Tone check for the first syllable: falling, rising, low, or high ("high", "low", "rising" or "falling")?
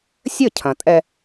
falling